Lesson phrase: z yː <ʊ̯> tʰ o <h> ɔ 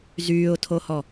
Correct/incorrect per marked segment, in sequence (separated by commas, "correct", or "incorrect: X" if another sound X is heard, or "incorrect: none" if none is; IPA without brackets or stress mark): correct, correct